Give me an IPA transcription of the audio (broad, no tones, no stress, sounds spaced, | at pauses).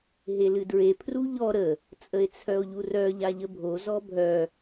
ɦ e l ɨ d ɹ e pʰ r u ʎ ɔ ɾ ə | t͡sʼ ə e̯ t͡sʰ œ o̯ ʎ u r œ ʎ a ʎ ə bʱ o z ɔ bʱ œ